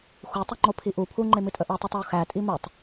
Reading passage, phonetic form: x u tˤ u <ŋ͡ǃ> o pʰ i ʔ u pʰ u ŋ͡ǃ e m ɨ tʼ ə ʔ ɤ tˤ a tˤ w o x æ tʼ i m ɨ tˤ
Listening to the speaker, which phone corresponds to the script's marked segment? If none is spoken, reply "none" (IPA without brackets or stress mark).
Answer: ŋ͡ǃ